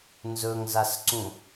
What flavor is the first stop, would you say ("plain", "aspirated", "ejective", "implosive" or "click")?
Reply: click